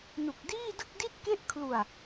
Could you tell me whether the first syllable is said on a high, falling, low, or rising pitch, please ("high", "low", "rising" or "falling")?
low